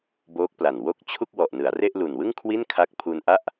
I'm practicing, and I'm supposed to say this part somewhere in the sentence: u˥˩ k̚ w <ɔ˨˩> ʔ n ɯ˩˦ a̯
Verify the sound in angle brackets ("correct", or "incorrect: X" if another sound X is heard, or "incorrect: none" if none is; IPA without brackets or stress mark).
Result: correct